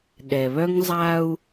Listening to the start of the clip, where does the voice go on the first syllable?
low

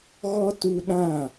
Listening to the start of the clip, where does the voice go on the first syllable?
high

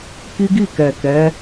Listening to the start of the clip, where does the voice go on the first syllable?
high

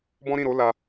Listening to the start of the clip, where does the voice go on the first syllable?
high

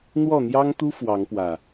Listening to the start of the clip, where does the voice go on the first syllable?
falling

